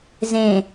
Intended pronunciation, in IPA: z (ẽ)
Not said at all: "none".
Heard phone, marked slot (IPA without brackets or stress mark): ẽ